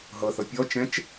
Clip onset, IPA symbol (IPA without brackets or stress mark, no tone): ɦ